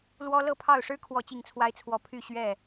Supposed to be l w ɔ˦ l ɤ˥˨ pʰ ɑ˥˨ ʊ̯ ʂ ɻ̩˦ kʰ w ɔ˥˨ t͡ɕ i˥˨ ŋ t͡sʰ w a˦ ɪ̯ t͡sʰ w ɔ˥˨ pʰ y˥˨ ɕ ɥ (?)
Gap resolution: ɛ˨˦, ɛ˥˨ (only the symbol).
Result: ɛ˥˨